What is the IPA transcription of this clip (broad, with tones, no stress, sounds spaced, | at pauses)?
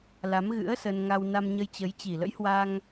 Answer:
l a˨˦ m ɣ ɨ̰˧˥ ə̯ s ə˧ n ŋ a˧ w n a˧ m ɲ ə˧ j t͡ɕ ə˨˦ j t͡ɕ i˨˩ l ə̰˧˥ j h w a˧ ŋ